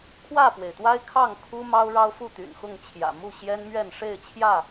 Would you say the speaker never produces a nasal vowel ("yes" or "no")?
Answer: yes